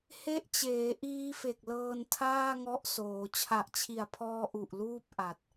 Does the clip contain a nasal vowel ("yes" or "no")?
no